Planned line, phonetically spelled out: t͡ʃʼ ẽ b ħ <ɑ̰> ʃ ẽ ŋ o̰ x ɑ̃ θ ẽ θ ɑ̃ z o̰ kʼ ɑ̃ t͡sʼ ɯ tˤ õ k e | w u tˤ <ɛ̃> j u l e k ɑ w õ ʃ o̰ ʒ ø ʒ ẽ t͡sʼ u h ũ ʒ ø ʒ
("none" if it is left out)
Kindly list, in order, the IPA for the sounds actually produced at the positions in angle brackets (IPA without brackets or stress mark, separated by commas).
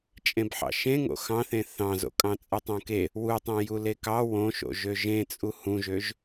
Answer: ɑ̰, ẽ